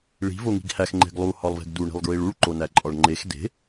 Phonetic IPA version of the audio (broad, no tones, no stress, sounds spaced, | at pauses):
ɭ i̤ v o ŋ i̤ ɡ h æ x ŋ͡ǃ e̤ ɡ lˠ u h ɒ lˠ v e̤ ɡ d u ɳ i̤ lˠ ɡ ɹ i ɭ u ɭ ǃ o n æ ǃʼ ɒ ɭ ŋ͡ǃ e x d e̤